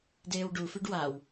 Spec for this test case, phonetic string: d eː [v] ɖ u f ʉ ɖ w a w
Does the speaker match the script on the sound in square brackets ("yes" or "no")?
no